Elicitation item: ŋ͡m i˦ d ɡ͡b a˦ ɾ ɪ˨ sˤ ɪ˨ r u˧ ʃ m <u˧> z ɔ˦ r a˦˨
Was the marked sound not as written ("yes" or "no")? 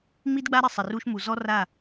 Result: yes